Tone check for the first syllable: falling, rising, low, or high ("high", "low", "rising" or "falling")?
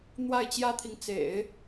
falling